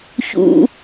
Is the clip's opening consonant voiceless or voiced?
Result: voiceless